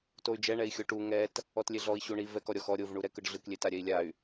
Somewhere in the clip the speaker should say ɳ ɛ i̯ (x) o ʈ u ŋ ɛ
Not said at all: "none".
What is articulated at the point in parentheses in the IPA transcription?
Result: xʲ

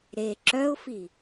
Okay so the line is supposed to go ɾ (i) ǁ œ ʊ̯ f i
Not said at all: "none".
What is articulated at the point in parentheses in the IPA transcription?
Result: e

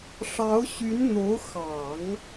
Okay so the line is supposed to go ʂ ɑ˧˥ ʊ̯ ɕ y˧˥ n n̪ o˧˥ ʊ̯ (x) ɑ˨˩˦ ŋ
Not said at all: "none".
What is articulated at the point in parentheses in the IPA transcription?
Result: x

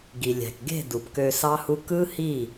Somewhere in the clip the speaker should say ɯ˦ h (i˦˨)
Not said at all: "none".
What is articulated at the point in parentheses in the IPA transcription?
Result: i˦˨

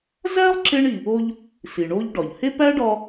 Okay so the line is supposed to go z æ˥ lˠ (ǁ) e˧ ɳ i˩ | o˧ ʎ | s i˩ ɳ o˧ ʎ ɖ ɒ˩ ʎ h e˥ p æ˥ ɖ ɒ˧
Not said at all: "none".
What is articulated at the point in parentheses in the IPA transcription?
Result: ǁ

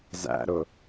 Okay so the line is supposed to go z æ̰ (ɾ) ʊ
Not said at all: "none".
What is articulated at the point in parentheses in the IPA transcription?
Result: ɾ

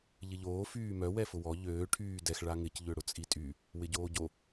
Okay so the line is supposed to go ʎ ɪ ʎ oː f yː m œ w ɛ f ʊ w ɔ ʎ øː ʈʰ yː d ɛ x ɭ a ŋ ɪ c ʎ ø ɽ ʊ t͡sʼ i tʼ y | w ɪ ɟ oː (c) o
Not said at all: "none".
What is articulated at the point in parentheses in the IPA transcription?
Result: ɟ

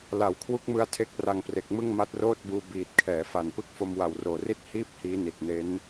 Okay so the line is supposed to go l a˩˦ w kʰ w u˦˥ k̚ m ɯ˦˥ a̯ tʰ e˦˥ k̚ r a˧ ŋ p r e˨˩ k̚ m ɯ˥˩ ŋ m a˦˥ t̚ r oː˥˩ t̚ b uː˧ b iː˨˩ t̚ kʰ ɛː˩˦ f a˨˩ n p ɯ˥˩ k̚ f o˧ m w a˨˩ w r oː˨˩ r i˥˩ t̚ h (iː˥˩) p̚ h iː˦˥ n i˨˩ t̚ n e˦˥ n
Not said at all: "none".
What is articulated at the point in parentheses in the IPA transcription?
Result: iː˥˩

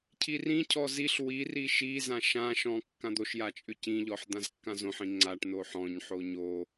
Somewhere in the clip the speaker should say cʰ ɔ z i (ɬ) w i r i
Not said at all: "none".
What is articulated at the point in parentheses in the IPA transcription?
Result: ɬ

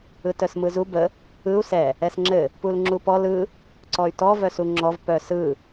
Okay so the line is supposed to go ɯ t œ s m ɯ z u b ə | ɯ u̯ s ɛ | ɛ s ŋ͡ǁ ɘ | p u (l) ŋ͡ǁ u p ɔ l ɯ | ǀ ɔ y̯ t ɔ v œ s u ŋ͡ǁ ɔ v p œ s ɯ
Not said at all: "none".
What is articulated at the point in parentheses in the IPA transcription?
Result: l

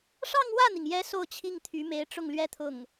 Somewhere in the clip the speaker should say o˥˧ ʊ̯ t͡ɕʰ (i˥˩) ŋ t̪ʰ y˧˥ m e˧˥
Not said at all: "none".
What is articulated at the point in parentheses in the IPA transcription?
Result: i˥˩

